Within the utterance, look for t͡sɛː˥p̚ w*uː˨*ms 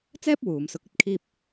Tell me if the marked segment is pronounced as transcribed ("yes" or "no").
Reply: yes